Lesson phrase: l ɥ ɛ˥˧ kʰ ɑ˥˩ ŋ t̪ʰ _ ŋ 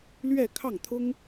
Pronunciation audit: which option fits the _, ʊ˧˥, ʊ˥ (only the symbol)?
ʊ˥